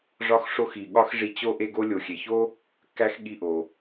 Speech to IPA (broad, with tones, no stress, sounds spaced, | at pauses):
ʐ ɒ˦ x ʂ o˦ x i˨ ɠ ɒ˥ x ʐ i˦ t͡ɕ o˥ ʔ e˥ ɡ o˥ lʲ o˨ xʲ e˨ ç o˥ | k æ˥ x ɠ i˦ ʔ o˨